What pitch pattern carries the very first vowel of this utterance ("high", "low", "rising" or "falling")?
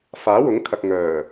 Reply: rising